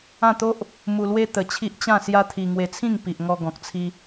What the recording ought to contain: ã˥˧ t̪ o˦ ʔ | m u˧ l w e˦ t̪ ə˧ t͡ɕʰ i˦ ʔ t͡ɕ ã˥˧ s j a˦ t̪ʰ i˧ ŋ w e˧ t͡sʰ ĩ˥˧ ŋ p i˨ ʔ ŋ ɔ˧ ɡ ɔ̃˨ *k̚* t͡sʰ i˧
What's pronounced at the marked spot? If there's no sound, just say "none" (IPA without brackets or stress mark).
k̚